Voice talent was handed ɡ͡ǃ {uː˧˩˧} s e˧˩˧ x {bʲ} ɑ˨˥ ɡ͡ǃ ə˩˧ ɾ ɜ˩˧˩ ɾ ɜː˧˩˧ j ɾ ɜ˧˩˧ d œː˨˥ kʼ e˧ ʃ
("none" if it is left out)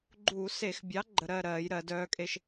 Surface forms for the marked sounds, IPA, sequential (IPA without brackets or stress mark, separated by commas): uː˧˩˧, bʲ